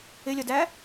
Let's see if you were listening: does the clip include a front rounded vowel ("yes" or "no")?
no